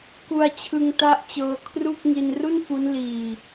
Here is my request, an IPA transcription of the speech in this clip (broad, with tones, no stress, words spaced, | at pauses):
ku˧a̯t͡ɕʰɯ˧ŋta˦˥ʔt͡ɕɤː˧ kʰru˥˩k̚ ŋi˧nru˥˩nfu˦˥n liː˧